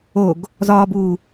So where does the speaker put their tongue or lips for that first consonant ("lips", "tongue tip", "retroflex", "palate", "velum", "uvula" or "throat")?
velum